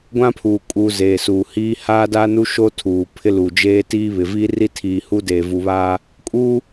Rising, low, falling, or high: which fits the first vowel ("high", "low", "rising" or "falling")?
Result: high